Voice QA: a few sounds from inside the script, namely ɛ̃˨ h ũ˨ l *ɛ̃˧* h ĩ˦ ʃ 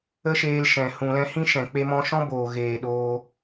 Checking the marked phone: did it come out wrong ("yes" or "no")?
no